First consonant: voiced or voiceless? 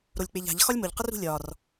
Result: voiced